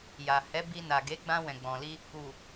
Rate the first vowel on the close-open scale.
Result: open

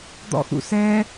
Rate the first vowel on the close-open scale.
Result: mid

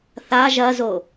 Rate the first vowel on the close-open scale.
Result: open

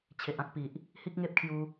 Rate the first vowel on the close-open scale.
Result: mid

